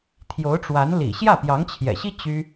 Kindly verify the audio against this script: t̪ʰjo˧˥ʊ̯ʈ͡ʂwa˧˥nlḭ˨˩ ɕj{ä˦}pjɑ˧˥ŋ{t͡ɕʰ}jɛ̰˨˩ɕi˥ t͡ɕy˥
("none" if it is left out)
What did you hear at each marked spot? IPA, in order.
ä˥˩, t͡ɕʰ

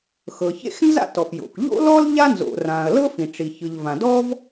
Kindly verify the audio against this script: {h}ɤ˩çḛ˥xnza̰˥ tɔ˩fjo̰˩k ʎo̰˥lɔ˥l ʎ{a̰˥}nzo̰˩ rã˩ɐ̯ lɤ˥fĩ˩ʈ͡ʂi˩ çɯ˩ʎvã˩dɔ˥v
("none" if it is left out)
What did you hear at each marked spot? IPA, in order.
x, a˥

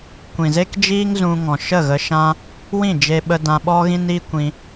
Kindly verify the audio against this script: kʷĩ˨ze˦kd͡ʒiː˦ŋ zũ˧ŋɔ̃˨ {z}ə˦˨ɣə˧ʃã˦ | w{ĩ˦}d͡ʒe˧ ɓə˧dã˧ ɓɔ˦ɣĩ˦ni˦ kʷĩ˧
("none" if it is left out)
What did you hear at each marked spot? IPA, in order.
ʃ, ĩ˦˨

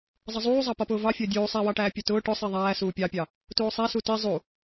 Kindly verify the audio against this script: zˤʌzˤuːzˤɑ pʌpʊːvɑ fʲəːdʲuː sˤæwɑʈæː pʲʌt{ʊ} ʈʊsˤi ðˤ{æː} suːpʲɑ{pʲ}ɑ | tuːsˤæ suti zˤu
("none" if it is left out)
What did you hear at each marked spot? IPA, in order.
ʊː, æː, pʲ

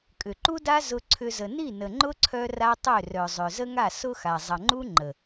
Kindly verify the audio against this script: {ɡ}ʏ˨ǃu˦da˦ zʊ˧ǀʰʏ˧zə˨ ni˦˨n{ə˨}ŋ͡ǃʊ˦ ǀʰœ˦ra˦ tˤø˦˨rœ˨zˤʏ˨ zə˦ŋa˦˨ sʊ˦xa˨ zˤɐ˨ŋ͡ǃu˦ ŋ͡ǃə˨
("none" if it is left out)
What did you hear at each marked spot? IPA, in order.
kʼ, ə˨

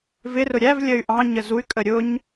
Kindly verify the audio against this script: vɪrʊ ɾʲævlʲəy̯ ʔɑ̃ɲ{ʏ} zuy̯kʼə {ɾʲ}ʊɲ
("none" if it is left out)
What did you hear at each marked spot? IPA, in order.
ə, ɾʲ

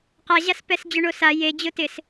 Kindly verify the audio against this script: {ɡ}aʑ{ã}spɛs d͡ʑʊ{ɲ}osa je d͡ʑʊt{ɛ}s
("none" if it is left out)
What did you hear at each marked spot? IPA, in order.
q, a, ɳ, ɪ

